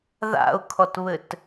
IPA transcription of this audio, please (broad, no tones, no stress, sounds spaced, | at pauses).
ð a̰ ʊ̯ kʰ ɔ t β ɘ t